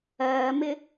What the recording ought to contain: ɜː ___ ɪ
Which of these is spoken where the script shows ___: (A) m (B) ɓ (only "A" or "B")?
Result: A